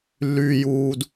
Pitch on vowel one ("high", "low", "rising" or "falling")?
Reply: low